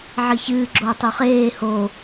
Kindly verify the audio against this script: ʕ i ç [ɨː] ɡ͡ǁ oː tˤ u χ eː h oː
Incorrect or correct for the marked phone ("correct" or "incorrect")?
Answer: correct